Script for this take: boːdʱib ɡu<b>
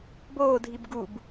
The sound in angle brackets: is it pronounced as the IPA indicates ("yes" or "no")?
yes